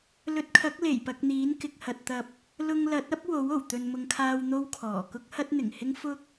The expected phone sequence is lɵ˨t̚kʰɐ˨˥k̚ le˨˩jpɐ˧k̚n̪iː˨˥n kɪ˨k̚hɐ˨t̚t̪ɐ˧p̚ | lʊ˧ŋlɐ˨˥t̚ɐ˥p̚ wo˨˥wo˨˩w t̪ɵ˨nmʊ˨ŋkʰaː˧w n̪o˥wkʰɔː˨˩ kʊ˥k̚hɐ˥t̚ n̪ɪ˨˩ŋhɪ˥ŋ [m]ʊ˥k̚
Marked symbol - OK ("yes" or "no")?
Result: no